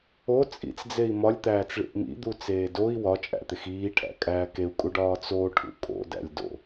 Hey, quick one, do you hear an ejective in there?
yes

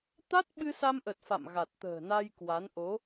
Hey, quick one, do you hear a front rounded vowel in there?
no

